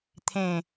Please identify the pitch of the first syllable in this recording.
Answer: low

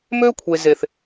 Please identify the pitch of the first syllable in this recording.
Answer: high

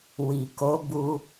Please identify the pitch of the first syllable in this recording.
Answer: low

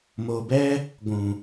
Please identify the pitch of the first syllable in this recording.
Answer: low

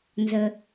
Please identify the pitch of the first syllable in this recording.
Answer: low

